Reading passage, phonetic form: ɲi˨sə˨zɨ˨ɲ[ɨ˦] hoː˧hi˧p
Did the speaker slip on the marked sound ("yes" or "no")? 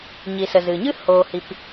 no